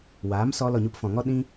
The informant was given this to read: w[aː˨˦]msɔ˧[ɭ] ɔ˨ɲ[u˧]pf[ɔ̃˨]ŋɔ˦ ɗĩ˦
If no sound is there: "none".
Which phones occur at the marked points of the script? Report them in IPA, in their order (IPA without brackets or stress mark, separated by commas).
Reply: aː˨˦, l, u˧, ɔ̃˨